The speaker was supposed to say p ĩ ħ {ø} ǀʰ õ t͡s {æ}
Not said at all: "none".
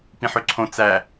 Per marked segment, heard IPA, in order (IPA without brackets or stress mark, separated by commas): ø, æ